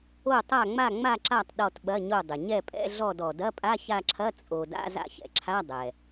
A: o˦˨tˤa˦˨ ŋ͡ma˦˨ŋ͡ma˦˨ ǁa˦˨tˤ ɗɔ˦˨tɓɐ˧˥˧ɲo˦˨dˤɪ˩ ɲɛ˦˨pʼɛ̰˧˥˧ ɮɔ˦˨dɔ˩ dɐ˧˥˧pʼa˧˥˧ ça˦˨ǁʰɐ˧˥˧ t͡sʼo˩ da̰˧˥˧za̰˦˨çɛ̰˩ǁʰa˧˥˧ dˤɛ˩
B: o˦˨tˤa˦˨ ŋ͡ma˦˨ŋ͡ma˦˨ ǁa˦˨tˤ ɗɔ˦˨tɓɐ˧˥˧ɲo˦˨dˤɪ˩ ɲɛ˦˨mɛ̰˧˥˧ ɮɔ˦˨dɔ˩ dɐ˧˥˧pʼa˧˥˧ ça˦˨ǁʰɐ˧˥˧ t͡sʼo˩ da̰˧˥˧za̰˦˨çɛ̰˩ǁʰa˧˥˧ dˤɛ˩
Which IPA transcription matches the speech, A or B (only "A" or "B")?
A